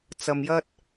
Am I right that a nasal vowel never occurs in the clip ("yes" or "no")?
yes